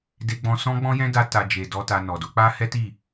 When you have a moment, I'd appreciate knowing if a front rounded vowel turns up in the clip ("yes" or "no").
no